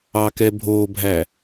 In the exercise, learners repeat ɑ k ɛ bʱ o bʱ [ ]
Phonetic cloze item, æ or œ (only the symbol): æ